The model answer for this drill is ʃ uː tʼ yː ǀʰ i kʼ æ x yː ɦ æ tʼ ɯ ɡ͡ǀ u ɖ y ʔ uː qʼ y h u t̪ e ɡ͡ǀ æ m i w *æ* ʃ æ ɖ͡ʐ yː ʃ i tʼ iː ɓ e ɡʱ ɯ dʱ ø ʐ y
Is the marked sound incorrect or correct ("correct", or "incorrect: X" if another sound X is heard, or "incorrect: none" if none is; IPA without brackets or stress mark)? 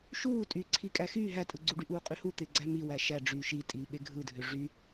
correct